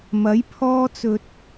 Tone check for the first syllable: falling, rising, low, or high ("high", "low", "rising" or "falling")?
rising